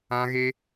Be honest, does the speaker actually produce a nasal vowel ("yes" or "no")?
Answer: yes